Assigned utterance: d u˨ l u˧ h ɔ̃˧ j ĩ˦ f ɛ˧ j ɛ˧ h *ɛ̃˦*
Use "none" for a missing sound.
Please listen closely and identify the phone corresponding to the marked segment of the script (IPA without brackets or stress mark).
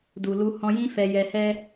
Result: ɛ˦